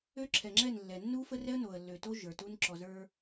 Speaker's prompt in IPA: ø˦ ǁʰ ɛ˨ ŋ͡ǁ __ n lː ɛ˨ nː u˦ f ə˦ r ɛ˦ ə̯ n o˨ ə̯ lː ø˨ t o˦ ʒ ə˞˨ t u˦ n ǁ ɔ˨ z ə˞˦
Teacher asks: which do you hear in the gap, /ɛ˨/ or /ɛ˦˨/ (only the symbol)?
ɛ˦˨